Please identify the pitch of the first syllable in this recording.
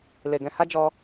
low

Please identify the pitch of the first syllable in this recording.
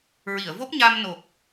low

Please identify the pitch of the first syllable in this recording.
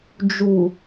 low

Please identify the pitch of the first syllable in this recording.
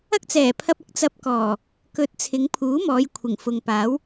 high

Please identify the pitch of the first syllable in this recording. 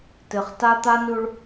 low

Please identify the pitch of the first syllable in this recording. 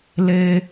low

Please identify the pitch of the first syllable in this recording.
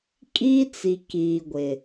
high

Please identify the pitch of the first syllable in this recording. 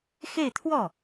falling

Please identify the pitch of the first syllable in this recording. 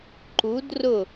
rising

